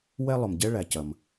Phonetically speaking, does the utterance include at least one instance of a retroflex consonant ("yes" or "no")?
yes